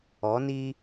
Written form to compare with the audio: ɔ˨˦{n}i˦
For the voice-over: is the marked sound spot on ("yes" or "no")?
yes